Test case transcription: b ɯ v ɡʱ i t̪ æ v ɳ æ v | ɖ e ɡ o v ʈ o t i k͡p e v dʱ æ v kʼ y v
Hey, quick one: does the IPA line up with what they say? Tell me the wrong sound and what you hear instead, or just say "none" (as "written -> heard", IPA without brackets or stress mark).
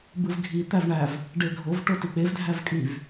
ɡ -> ɡʱ